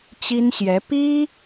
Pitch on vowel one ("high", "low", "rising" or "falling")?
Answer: high